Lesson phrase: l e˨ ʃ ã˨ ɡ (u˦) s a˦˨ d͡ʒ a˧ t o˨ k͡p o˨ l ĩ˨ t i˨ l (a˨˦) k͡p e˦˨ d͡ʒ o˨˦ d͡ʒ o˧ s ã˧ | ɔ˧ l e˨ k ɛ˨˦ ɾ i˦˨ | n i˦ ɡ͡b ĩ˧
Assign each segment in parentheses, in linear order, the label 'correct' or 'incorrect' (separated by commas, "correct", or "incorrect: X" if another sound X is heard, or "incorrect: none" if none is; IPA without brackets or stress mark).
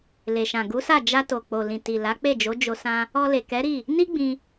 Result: incorrect: u˨˦, correct